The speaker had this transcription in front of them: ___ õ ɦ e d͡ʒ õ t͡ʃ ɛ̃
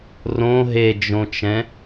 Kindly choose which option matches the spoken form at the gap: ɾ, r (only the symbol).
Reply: r